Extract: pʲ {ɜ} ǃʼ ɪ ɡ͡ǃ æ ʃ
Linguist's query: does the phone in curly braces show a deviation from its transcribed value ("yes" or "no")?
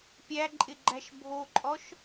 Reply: yes